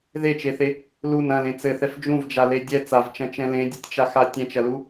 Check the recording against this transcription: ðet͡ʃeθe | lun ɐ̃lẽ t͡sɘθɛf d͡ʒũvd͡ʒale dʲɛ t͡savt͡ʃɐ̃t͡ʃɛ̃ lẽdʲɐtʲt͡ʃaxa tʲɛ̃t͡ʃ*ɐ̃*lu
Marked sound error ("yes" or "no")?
yes